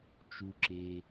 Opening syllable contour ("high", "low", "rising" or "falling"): low